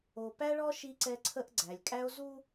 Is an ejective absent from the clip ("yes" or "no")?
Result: no